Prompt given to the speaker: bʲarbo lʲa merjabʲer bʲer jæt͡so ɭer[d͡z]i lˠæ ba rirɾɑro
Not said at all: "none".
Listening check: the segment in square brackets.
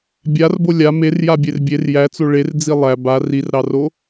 d͡z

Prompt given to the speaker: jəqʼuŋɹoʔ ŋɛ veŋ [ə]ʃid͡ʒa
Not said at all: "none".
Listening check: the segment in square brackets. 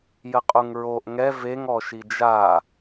ɔ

